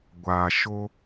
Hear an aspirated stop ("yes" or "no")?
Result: no